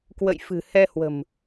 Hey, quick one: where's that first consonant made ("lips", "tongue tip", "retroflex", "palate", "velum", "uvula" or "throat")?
velum